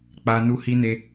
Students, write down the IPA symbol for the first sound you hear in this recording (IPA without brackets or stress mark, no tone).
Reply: k͡p